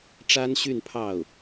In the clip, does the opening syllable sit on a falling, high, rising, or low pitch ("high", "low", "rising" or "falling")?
high